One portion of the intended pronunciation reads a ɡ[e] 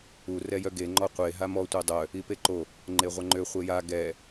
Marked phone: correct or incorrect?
incorrect: ɛ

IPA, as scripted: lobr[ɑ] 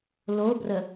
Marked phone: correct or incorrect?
incorrect: ə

